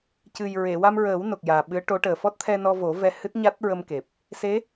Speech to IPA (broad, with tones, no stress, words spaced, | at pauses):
cɨ˨˩jɹe˨˩˨ wa˧mɹəː˨˩˦wno˨˩k̚ jaː˨˩ɓɨ˧˥ə̯ʈo˧˥ʈəː˨˩ fɔ˦˥t̚t̪ʰɛ˧nɔ˧vo˨˩˦ vɛ˧hɨ˦˥t̚ ɲa˦˥t̚ɹə˧mke˨˩p̚ | se˧˥